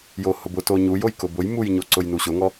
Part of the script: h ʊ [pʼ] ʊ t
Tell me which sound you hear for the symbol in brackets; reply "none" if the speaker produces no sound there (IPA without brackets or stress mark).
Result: b